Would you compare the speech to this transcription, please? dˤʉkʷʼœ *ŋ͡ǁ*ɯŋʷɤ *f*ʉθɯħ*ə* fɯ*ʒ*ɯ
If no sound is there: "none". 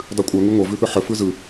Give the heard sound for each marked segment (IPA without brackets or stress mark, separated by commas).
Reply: ŋ, v, ə, z